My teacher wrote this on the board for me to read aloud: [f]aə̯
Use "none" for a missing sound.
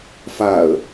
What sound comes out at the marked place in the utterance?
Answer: f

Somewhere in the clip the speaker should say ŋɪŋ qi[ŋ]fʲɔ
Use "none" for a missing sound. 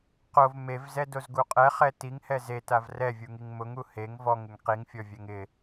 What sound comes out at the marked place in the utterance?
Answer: ŋ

